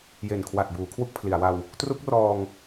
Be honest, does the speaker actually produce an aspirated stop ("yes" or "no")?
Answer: yes